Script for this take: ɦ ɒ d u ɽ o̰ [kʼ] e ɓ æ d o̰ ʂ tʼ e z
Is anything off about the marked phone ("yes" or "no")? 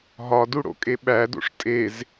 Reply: no